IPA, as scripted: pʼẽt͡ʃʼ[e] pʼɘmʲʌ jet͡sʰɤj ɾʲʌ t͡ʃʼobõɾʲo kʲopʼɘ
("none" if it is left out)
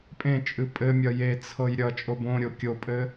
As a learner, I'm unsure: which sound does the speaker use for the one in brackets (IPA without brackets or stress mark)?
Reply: ɨ